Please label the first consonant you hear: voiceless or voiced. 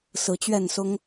voiceless